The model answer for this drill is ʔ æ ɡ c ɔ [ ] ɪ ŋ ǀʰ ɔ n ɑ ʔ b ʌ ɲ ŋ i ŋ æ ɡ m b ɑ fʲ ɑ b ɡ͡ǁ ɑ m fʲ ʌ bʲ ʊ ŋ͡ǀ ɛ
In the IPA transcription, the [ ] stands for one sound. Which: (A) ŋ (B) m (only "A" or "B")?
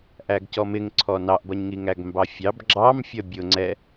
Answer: B